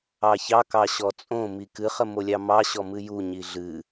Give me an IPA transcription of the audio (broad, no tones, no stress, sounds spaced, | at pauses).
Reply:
ɑ ç ɑ k ɑ ɕ ɔ t͡sʼ õ m i k ɨ χ ə m o lʲ ɑ m ɑ ɕ ɔ m ɨ j u ɲ i ɮ ɨ